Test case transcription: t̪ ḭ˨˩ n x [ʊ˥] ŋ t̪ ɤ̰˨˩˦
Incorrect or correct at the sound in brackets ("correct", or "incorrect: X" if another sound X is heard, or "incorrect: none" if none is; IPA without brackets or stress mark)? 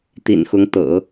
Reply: incorrect: ʊ˧˥